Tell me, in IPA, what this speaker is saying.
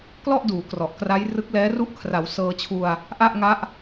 klɔ˥˩ʔduː˩˦ krɔ˨˩ʔkra˦˥jrɯ˦˥k̚lɛː˦˥ ru˦˥ʔkʰra˩˦w sɤː˧t͡ɕʰu˧a̯ | ʔa˥˩ʔ ŋa˦˥ʔ

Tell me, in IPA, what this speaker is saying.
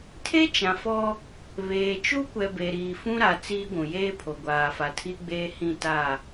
tʰe˦t͡ʃã˨fɔ˦ | βeː˨t͡ʃu˦kʷɛ˨ be˨ɾiː˨ fũ˦ɾa˨ t͡siː˦ɡʷũ˨ jeː˦pʰo˨ ɡʷaː˨fa˨tʰi˦ɡ͡beː˦ hĩ˦˨ta˦˨

